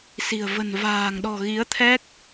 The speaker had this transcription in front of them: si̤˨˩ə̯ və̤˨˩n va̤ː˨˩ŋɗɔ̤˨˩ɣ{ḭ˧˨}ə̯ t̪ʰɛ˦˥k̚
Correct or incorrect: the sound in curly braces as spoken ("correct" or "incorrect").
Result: incorrect